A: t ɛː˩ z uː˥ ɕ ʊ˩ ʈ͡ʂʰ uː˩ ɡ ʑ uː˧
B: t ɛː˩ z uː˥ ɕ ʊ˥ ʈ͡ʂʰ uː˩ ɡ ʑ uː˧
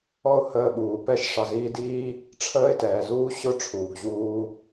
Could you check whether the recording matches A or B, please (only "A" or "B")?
B